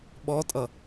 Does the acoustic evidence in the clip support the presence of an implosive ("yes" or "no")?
yes